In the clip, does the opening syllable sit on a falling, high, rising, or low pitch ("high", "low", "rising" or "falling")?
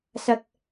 low